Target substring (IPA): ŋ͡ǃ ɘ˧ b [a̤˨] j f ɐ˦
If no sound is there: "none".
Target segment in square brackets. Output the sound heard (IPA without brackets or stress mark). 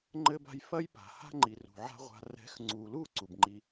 a̤˧